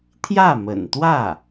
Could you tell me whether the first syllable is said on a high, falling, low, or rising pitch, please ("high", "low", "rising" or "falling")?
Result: falling